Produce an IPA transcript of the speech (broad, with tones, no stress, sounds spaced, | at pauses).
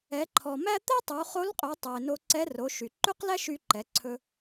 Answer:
ɛ˩˧ ǃʰ ɔ˩ m æ˥ t̪ ɛ˥ tˤ u˩˧ χ o˧˥ l qʼ ø˩˧ tˤ ɵ˩ ɪ̯ n o˧ ǀ ɛ˧˥ r o˩˧ ʃ y˩ ǃ ʉ˥ q l æ˥ ʃ y˧ ǃ ɛ˩˧ ǀʰ ɵ˧